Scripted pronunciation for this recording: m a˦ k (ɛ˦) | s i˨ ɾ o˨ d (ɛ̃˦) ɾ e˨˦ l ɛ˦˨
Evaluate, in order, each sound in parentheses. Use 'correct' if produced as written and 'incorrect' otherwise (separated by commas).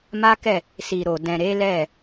incorrect, incorrect